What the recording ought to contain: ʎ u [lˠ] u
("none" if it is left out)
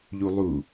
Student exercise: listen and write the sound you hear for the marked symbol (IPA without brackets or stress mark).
lˠ